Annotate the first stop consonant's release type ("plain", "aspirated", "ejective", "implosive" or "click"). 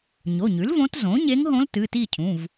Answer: plain